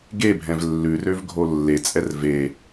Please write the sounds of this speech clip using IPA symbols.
ɡebʱɛ̃v lːʉrøv ɡʱolːet͡sʼɛr ve

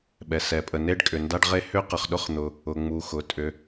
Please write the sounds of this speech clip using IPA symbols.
ɓɛ˩ sɛ˩pʼə˩ne˥ɖ kʼʏ˩nda˥ɖʁe˥ hʏ˥qə˩χɗʊ˥χ n̪ʊ˩ | ʊ˩ŋ͡mu˩ xʊ˩ tʼʏ˩

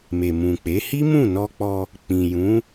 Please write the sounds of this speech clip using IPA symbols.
me˨mũ˨k͡pe˨˦ hi˦mũ˦˨nɔ˧k͡pɔ˧ | k͡pĩ˨jũ˨˦

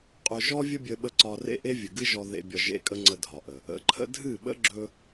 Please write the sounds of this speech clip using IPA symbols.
qʼɵ˧ʒɔ˦ vʲə˦bʲə˧ɓə˧ ǀɒ˧ rḛ˦ʔe˦vʲɨ˨ɡɨ˦ ʒɔ˧ðḛ˧ bʲɒ˧ ʒḛ˧kʼə˧ ŋ͡ǀə˧dʱɒ˨ʔə˨ | ə̰˨˦ǃʰə̰˦ dʱɨ˦˨ɓə̰˦ ɡ͡ǁɵ˦

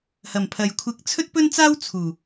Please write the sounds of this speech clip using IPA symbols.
hɐ˨˩mpʰɐ˨jkʷʰɪ˧k̚ t͡sʰɵ˥t̚pɵ˥nt͡saː˥w t͡sʰuː˨˩

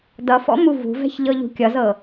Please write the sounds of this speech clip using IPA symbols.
dʌfɔ̰ muvṳvɛ̤ç ʎɤʎṳkʲʌzɤ

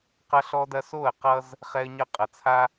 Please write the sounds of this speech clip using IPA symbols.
qʌ˦ɬɔ˦dɐ˦ so˦˨ə̯ qʌ˦z | χɛ˦ə̯ɲʌ˦ qʼɐ˨t͡sʰa˦

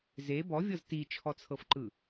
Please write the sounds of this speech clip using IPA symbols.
ze bɔvʲɤz tit͡ʃʰɔt͡sʰɤfǃɯ

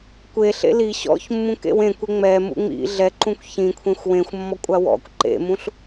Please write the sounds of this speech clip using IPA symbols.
kʷe ɬḛli ɕɔ̰ç mːũkḛwẽkʷe ŋ͡mɛ mṵŋ͡mḭ ɮɛǃũkʷ çĩ kʷʰẽxʷwẽxʷmːɔ kʷʼawɔ̰kʷ ǃḛmũɬ

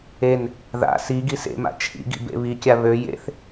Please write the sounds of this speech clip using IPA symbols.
en | ða̰ si ɡisḛma̰ t͡ʃʰḭɡḭ bḛβikʲa βø jḛθ

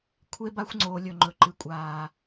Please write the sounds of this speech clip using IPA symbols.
kʷʰe˦ba˦xʷŋ͡ǀoː˨ lʲɵ˨ŋ͡ǃɵ˨ ǃɨ˨kʷʼaː˨

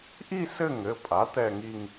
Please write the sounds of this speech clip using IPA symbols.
ʔi˥˧sɘ˥˧ŋɘ˩˧˩pʼa˩˥ t̪ɛ˥˧ŋi˥˧ŋ

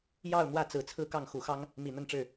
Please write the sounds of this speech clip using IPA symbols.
jɑ˥˧ʊ̯ n̪wä˥˩t͡sɹ̩˨˩ t͡sʰɹ̩˥˧kɑ˥˩ŋxu˨˩xɑ˥ŋ | mi˨˩n̪ə˥˧nʈ͡ʂɻ̩˥˩

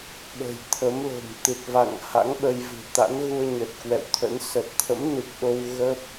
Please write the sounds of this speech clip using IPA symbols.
ɓə̤˨˩jt̪ʰə˨˦mlo̤˨˩m t̪ɨ˨˩t̚va̰˧˨ŋ ha̰˧˥ŋɓə˧jvɨ̤˨˩ t̪a̰˧˥n ɣu˧ə̯ɲə˨˩t̚ kwɛ̰˧˨wt̪ʰə̰˧˥n sə˨˩t̚t̪ʰə̰˧˥mnɨ˨˩k̚ɗo˧w ɣə˦˥p̚

